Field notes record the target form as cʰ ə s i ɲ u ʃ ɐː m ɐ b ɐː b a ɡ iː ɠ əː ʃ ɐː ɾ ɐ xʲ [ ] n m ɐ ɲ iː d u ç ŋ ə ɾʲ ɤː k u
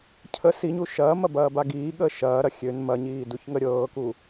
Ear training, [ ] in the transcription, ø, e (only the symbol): ø